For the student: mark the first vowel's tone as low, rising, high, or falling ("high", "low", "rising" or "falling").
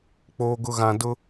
high